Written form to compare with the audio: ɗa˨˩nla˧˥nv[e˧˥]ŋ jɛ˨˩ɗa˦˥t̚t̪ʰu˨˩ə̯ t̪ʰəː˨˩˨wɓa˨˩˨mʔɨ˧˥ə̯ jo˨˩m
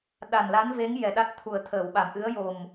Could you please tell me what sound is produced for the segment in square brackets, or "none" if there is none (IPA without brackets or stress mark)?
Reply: e˧˥